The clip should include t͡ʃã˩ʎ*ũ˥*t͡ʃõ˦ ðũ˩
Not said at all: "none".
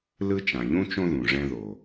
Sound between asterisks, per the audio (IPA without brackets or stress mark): ũ˥